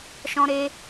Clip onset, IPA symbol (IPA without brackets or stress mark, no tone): ʃ